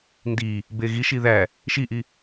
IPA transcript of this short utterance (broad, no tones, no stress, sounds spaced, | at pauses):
n d i | b e ɣ i ʃ i ð æ | ʃ i ʔ i